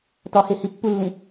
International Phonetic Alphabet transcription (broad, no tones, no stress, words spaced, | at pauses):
tɒhehi pːulːĩ